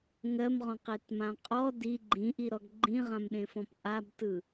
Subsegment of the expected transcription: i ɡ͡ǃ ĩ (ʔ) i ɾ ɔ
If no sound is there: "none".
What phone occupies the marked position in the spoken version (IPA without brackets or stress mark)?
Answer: ʔ